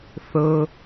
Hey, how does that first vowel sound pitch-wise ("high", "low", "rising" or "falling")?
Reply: high